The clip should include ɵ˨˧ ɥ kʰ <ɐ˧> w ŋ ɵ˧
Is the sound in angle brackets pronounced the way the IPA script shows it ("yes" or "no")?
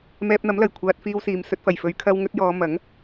yes